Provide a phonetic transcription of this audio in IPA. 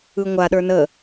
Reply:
ɯ ŋʷ a ɗ ə˞ n ə

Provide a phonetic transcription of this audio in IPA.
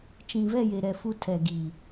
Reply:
t͡ʃ ĩ˨ v ɛ˦˨ j e˨ ɾ ɛ˨ f u˦ tʰ ɛ˨ ɡ i˨

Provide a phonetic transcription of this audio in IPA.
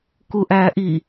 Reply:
k u ʔ æː ʔ i

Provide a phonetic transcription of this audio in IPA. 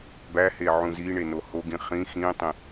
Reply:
b æ h e ʕ ũ z i ɳ e n o h o ɡ ĩ χ ĩ x ĩ tˤ ĩ

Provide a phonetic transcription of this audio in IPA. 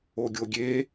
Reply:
o ɡʲ o ɡʲ e

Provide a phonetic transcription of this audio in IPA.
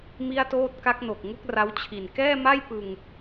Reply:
m i˥˩ a̯ t oː˥˩ t̚ k a˦˥ k̚ n o˨˩ k̚ ŋ u˦˥ k̚ r a˦˥ w t͡ɕʰ i˨˩ n k ɛː˥˩ m a˥˩ j p ɯ˧ ŋ

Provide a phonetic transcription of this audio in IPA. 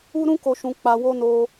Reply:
u˧ ɾ ũ˧ k o˨ ʃ ũ˨ k͡p a˨ w o˧ n o˧

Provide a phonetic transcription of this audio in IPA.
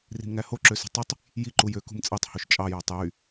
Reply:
r i̤ m ŋ æ h o ǁ ø s ṳ tˤ y tˤ | j i ǃ u j ø k ṳ m t͡sʼ e tˤ h o ʃ t͡ʃʼ ɑ j ɑ tˤ j y

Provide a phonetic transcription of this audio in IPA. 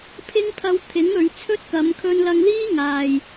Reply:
pʰ ɪ˥ ŋ pʰ ɐ˧ w t̪ʰ ɪ˨˥ ŋ ɵ˨˧ ɥ t͡sʰ ɵ˥ t̚ k ɐ˨˧ m kʰ ɵ˧ n l ɐ˧ ŋ l iː˥ ŋ aː˨ j

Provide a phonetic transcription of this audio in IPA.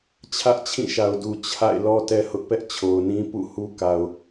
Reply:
t͡ɕʰ ä˦ ʔ t͡ɕʰ ĩ˦˨ ʃ a˨ ʊ̯ d u˨ t͡ɕʰ a̰˦˨ ɪ̯ l ɔ˦ t ɛ˦ h ʊ˦ ʔ p ɛ˦ ʔ t͡ɕʰ o˨ ʊ̯ n ĩ˦ p ṵ˦˨ h u˦ k a˨ ʊ̯

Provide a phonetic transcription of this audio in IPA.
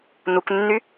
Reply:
n u k nː y

